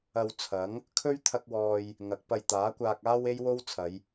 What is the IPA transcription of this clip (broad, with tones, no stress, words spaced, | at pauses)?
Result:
ɐ˧wt͡sʰɐ˨˥ŋ | kʰɵ˥ɥt̪ʰɐ˧k̚wɔː˨j | ŋɐ˨˥k̚pɐ˧j t̪aː˨˥kʷaː˧k̚aː˥w e˥jwo˥wt͡sʰɐ˨˧j